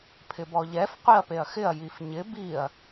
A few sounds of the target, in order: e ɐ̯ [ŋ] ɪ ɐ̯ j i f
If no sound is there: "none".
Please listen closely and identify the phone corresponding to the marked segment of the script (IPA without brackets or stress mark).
x